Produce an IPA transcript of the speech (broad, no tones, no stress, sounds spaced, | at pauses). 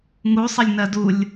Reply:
ŋ u sˤ ə lʲ n ɜ d u lʲ